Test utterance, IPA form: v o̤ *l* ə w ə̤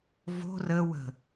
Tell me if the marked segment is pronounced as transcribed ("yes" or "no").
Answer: no